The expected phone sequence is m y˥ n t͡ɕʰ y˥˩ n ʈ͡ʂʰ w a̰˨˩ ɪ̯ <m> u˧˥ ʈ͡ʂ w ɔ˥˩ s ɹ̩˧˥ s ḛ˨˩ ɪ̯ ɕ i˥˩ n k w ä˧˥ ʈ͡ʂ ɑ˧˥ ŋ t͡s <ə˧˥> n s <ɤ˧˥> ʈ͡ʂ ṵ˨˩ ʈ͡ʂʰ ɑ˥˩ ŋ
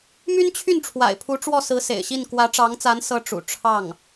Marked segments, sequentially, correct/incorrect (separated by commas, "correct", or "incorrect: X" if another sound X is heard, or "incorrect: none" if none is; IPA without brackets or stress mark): incorrect: pʰ, incorrect: a˧˥, correct